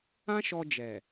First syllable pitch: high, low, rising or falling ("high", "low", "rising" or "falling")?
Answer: high